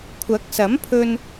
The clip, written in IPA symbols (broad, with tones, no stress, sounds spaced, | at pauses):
kʷʰ ɐ˨˥ k̚ s ɐ˨˥ m pʰ ɵ˧ n